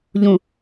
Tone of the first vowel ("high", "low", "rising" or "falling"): low